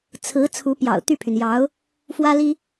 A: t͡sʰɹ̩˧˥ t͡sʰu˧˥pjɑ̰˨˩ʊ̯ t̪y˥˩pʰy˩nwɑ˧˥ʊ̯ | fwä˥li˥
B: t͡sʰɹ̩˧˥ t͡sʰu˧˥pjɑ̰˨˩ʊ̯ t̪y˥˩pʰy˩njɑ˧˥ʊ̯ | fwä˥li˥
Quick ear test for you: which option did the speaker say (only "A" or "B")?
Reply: B